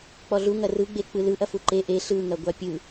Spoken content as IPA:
k͡pɔɮu ŋɐrɯɡ͡be k͡pɯlɯʔɐ fuǃe ʔe ɬɯŋɐɡʷa pʲɯ

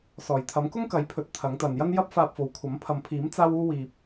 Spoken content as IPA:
sɔː˨˩jt̪ʰɐ˨˥m kʊ˥ŋkɐ˨˥jpʰɵ˨t̚ t̪ʰɐ˨˥ŋt̪ɐ˨njɐ˥n jɐ˥p̚faː˧p̚fo˨wkʷʰɐ˨˥m pʰɐ˨mpʰiː˨˥m t͡saː˥wuː˥ wiː˧p̚

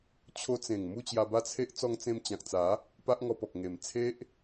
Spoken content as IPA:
t͡ɕʰo˧t͡sẽ˨˩ŋ mu˥˧t͡ɕja˧ba˦t͡sʰe˦ʔ t͡sɔ˧ŋt͡sẽ˧mt͡ɕã˨k̚t͡sa˨˦ | pa˦ʔŋɔ˧pɔ˨k̚ ŋe˨˩m t͡sʰe˦ʔ

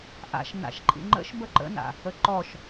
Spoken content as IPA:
ʔa̰ʃ na̰ʃǃʼḭŋ͡ǃə̰ʃ bəǃə̰na̰ | əǃɔʃ

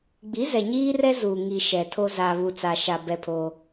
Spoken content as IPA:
ɡ͡bi˨˦zɛ˨ɲiː˦rɛ˦ zu˨ŋi˨ ʃɛ˨ tʰo˦za˨ βu˨t͡sa˨ʃa˨ bɛ˦pʰoː˦

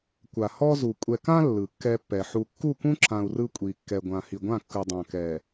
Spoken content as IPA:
kʷa˨ hɔ˦zu˨ kʷʼɛ˨kã˦ lːɯ˨kːɛ˦pːɛ˨ ħu˨kːu˦˨kũ˦ǁã˨u̯ rɯ˦kʷʼi˨kːɛ˨ ɡʷã˨hi˨ɡʷã˦˨ kːɯ˦dˤã˦ kɛ˨

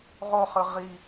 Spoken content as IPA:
ʁoχɯ ʁi

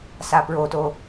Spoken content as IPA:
sapɹoto

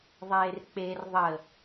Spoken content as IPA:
ðˤeːrk͡per ðˤə

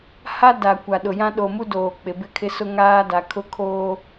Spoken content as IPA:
ha˦da˨ kʷa˨ɗʊ˨jã˦ ɗo˨mu˦doː˨ k͡pɪ˨bɪ˦kʰɪ˦sʊ˦ ŋaː˦da˨kʰʊ˦kʰoː˦

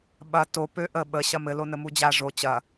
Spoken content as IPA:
ɓɐ to pøʔə ɓə ɕɐmɘ lonəmud͡ʑa ʐo t͡ɕɐ

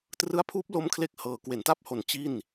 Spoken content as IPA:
trɯ˦˥a̯pʰuː˦˥p̚ lo˦˥mkʰle˦˥k̚hɤː˩˦ kwe˩˦nta˥˩p̚ho˨˩n t͡ɕi˥˩n

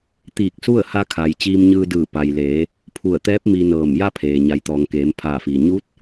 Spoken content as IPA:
t̪iː˧˩k̚su˥˨ə̯ ha˧kʰa˩j t͡ɕiː˧mɲɯː˧dɯː˧˩ pa˩jleː˩˧ | pʰu˧˩ə̯t̪ɛː˧˥p̚ mi˧nɤː˧˩m ja˥˨pʰeː˩ ɲa˩˧jt̪ɔː˩ŋkeː˩˧m pʰaː˧˩fiː˩ ɲu˧˥t̚

